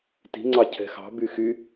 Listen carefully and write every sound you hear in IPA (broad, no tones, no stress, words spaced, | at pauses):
ti̤ŋ͡ǀɑ cʰɛ̤xɑ̤ byxy